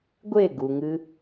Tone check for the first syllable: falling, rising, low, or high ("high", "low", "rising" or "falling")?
falling